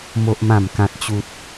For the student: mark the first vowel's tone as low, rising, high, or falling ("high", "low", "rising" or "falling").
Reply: high